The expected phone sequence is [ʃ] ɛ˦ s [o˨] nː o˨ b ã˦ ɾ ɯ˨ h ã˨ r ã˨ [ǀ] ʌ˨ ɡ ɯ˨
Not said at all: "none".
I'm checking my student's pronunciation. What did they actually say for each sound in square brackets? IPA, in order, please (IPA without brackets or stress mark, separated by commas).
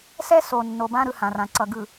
s, o˨, ǀ